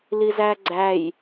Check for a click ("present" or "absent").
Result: present